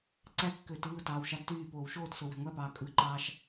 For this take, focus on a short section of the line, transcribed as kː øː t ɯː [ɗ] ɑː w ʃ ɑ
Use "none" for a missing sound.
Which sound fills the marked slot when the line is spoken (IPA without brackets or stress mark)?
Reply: t